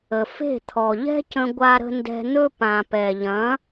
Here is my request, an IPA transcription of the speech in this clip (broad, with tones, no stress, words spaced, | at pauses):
ə˩fe̤˥˩ t̪ʰɔ˩ʎɛ̤˥cə̃˧ ɡʷa˧ɾə̤˧ ndɛ̤˧n̪ɵ˥pã˩ pɛ˩ʎɐ̃˩˥